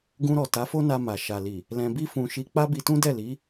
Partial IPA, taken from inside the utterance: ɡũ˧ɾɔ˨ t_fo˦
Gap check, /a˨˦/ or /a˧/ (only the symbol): a˨˦